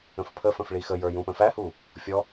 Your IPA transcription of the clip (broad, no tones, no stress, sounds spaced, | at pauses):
ə̃ f pʰ ə f ə̃ f ɭ i x ə j ə˞ j ũ p ə̃ f æ h u | fʲ ɔ